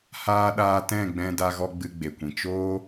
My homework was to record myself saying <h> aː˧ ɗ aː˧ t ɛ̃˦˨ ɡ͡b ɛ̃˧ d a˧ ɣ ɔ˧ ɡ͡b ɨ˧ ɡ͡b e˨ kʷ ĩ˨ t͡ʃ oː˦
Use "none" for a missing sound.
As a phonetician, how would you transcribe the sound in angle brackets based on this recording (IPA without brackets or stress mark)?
h